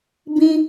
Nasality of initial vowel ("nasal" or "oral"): nasal